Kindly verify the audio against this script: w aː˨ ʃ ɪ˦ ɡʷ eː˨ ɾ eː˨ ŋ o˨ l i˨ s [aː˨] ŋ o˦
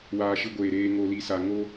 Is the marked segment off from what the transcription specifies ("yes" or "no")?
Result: yes